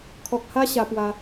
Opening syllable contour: low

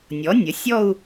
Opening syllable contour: rising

